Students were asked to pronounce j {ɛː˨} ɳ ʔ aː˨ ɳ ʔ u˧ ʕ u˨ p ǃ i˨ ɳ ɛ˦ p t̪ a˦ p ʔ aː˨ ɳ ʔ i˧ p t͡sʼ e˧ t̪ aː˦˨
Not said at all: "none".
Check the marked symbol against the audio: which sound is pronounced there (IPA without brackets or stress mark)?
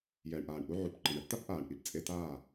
ɛː˨